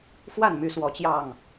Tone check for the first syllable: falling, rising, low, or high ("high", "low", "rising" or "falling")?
falling